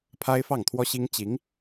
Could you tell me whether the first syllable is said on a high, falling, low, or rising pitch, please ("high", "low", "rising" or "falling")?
high